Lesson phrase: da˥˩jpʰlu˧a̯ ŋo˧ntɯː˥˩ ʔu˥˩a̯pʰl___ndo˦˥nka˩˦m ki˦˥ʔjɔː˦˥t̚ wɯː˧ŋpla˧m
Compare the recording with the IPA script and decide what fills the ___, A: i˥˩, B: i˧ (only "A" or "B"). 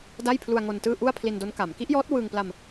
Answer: B